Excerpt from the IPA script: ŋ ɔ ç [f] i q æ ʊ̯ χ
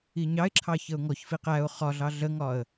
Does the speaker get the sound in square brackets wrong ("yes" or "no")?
no